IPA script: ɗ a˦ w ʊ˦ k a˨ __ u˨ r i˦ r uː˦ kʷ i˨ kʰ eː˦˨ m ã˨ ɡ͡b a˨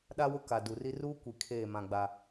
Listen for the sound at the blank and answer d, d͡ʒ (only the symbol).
d